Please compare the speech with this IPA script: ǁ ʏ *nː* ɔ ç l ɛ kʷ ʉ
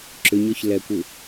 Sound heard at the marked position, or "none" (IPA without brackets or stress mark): ɲ